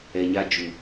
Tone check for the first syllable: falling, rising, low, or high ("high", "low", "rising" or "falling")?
low